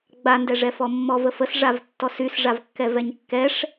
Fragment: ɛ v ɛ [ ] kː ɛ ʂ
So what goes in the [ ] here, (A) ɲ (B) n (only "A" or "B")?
A